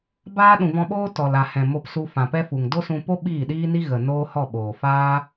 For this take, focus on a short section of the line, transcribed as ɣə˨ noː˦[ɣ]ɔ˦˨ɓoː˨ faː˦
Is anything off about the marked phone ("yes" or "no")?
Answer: yes